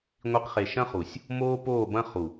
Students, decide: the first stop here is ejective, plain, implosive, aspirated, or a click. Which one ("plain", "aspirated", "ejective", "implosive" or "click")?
plain